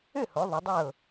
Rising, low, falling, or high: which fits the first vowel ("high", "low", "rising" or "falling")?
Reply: falling